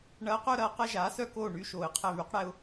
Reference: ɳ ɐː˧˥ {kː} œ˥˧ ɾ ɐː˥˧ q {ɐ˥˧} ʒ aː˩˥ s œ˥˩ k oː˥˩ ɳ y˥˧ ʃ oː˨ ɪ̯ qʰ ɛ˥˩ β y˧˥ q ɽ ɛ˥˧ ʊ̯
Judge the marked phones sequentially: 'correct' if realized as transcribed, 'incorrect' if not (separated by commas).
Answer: incorrect, correct